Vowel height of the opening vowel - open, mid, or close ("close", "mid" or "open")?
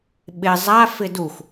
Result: close